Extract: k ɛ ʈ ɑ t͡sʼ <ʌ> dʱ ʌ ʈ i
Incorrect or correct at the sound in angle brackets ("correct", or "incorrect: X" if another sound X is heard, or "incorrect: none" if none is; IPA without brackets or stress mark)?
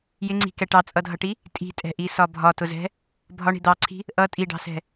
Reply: correct